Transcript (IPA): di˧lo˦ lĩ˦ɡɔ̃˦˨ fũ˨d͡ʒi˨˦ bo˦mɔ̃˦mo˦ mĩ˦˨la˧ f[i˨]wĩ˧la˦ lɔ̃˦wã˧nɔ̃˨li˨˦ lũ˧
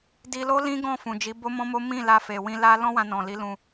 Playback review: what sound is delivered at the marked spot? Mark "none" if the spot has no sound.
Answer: e˨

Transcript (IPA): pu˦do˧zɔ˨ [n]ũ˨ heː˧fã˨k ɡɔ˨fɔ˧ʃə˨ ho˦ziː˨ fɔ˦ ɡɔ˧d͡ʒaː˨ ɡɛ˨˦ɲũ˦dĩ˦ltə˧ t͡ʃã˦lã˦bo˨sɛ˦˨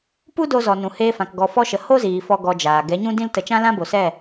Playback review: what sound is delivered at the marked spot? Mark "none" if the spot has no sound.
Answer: n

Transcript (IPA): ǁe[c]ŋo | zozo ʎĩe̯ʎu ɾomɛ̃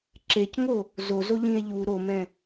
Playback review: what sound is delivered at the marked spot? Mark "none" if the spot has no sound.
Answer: c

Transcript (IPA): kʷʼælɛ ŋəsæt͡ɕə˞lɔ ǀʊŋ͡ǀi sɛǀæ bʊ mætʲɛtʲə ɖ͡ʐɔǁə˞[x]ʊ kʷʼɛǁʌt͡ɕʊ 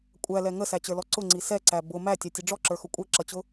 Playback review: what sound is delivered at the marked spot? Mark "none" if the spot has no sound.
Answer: x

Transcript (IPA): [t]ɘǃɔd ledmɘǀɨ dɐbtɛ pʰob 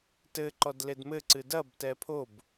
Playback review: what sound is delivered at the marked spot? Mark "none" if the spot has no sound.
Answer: t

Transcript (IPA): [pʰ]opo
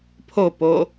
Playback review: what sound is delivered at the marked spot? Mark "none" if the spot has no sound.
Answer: pʰ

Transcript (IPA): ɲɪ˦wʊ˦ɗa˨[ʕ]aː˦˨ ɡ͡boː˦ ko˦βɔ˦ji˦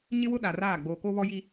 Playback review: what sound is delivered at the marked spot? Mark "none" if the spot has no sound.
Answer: r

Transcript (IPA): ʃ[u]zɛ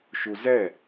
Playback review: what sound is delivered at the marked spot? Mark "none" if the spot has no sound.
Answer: u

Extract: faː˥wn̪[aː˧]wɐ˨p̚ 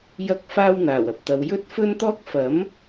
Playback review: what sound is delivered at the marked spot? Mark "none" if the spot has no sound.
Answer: aː˨˩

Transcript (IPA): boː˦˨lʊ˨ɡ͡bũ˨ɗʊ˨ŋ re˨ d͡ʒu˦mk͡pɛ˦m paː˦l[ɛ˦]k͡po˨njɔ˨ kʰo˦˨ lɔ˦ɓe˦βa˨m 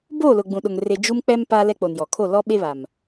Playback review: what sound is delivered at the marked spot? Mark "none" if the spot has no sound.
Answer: ɛ˦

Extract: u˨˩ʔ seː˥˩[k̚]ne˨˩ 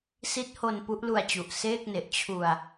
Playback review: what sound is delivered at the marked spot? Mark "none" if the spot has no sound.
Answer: k̚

